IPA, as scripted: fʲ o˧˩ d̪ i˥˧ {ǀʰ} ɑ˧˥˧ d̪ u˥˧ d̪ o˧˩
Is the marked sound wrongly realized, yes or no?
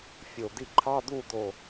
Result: yes